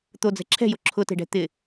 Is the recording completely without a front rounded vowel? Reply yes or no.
yes